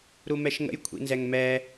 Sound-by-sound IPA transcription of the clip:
ɾumɛʃŋə̰j kʷʰḭnzɛŋmɛ

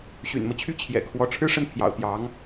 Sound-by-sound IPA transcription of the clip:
ɕy̰˨˩nmɤ˦t͡ɕʰy˥˩ t͡ɕʰjɛ̰˨˩kʰwɔ˧˥ ʈ͡ʂʰɻ̩˥ʂə˥˩n pʰjɑ̰˨˩ʊ̯t̪jɑ˧˥ŋ

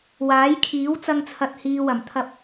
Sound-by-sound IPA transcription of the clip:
waː˨˥jkʰiː˨˥w t͡sɐ˧ŋt͡sʰɐ˨t̚hiː˨wɐ˨˩m t̪ʰɐ˧p̚

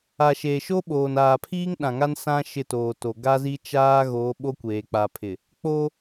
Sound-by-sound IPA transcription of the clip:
a˨ʃeː˨ʃo˦ ɓoː˨naː˨pʰiː˦ŋ ɗã˨ŋa˦nsã˦ ʃɪ˦˨toː˨to˨ ɡa˦zi˦t͡ʃaː˦ɣoː˨˦ ɓo˦kʷeː˨k͡pa˨pʰɪ˨ | k͡po˦

